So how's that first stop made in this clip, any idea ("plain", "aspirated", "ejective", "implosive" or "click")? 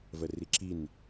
click